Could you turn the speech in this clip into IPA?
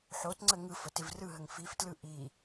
ħ o t ŋ͡ǀ ə ŋ ɯ f ə t ɪ v r ɯ ɦ ə ŋ f i f t l ɯ ʔ i

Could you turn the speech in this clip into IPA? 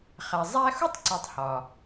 χ æ˨ zˤ æ˦ x u˥ tˤ ǀ o˨ tˤ h ɒ˩

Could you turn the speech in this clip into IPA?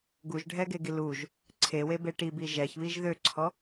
ɡ u ʒ ɖʱ ɛ ɡ e ɡ i l u ʒ | ǀʰ e w e b e ʈ i b i ʒ ɛ ç β i ʒ ð ø ǀʰ ɔ

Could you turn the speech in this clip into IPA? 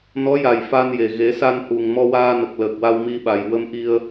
n ɔ˧˥ j a˨˩ j f a˧ n j e˨˩ ɣ e˨˩˦ s a˧ n h u˨˩ ŋ m ɔ˧ w aː˧ n ə˨˩ k̚ l əː˨˩ k̚ w a˧ w m i˧ ɓ a˨˩ j w ə˧ m ʔ i˧ ə̯

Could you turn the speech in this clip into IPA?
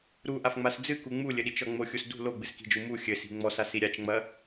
ɾ u ʔ a f ŋ͡m a s d͡z ɨ k u ŋ͡m u lʲ ɘ ɗ i t͡ʃ ɔ ŋ͡m o xʲ u s d ṳ l o ɡ͡b ɨ s k i̤ d͡ʒ u m u xʲ ɘ s i̤ ŋ͡m ɔ s a s i ɾʲ a t͡ʃ ŋ͡m ɐ

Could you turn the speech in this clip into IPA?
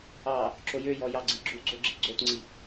ɑ | ǁ o j ø j ɔ j ɑ ɡ͡ǀ i ɡ͡ǁ u ɡ͡ǀ o ɡ͡ǁ i ɡ͡ǀ o t ŋ͡ǀ i

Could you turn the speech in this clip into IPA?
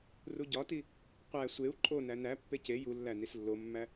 r u ɟ ɒ t i | qʷ æ sʷ e u̯ ǃʼ o n æ n æ pː e c e j u lː æ n i s lː o mː æ

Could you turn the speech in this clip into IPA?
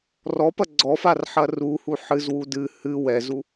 r ɔ p ɐ ɡ͡ǀ ɔ f a r ħ ɐ r u h u ħ ɨ z w u d ɨ h ɨ w ɛ z u

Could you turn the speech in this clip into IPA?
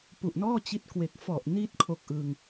p u˨˩ ʔ n ɔː˥˩ t͡ɕ i˦˥ t̚ k w e˨˩ k̚ f ɔ˨˩ ʔ n i˦˥ t̚ kʰ o˦˥ k̚ ʔ ɯ˧ ŋ

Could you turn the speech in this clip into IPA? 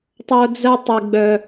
tˤ o˦ d͡z ɜ˦ tˤ i˨ ɡ͡b œ˦

